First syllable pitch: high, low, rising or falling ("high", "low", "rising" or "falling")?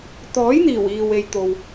rising